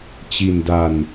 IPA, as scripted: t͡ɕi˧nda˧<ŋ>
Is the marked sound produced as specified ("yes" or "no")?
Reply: no